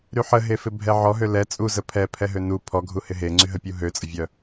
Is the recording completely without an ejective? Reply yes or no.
no